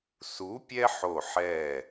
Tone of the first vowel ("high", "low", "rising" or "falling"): rising